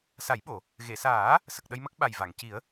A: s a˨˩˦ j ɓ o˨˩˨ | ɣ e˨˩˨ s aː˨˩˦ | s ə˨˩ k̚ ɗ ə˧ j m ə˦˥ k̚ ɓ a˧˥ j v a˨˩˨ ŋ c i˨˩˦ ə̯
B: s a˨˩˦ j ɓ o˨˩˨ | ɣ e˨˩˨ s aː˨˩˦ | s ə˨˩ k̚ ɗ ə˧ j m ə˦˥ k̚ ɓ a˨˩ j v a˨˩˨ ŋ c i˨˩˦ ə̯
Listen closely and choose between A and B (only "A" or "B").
B